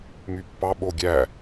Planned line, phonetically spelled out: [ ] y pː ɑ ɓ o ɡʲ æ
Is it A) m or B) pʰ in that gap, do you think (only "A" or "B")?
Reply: A